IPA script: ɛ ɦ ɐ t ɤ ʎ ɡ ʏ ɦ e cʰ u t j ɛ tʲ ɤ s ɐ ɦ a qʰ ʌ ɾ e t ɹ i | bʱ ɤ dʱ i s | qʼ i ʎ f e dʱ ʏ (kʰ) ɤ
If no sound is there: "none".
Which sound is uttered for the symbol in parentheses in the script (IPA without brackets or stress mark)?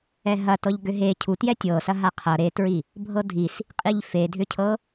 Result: cʰ